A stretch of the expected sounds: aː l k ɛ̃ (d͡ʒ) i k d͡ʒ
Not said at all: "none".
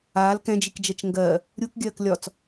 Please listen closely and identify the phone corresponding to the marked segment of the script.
d͡ʒ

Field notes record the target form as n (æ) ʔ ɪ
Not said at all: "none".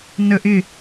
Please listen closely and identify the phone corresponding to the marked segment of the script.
ə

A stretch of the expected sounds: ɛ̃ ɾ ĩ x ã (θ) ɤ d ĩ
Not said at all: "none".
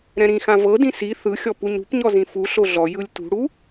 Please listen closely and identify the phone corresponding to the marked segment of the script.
v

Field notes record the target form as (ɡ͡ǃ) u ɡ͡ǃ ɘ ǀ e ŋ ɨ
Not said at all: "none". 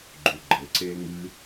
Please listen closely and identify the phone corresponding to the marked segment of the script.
ɡ͡ǃ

